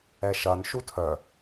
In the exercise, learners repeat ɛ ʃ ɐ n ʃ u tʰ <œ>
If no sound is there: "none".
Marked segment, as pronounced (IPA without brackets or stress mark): œ